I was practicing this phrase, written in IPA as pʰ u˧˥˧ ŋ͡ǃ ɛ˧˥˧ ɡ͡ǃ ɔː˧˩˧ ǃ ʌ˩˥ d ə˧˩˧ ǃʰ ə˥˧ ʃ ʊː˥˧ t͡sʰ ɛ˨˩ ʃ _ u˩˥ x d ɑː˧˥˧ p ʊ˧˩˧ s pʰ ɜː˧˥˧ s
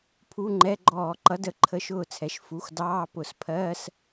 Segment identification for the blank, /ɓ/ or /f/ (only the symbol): f